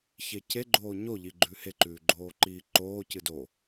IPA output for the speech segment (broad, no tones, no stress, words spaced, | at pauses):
çece ɡ͡ǃoːɲoʎi ɡ͡ǃʉheǃʉːɡ͡ǃoː ǃiːǃoː cɨdo